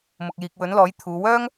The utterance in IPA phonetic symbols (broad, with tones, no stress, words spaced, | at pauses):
mʊ˨k̚jiː˨k̚ wɵ˨˥nlɔː˨˥jt̪ʰuː˨˧ wœː˥ŋ